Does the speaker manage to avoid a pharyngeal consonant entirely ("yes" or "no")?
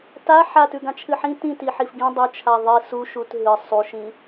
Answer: no